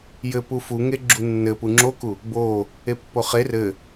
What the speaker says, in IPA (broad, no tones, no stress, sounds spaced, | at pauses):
j ɘ p u f u ŋ e ɡ͡ǁ u nː ɘ p u ŋ͡ǁ o k u | b o | e pː o χ e r ɘ